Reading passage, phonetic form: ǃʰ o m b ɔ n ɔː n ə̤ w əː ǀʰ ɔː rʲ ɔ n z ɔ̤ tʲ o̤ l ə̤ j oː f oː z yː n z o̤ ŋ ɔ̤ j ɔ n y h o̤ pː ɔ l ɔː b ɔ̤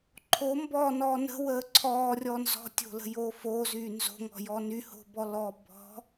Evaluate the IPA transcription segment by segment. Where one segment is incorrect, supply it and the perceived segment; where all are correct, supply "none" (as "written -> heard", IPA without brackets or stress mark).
pː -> b